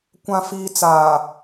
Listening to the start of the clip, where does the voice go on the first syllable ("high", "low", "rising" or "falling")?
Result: low